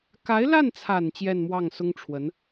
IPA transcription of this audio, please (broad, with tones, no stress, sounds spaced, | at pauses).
k a˧˥ ɪ̯ l a˥˩ n t͡sʰ a˨˩ n t͡ɕ j ɛ˥˧ n m w ɑ˥˩ ŋ s ʊ˥ ŋ ʈ͡ʂʰ w ə˧˥ n